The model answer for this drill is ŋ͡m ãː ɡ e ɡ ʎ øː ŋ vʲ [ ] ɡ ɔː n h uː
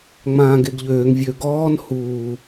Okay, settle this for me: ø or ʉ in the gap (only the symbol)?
ø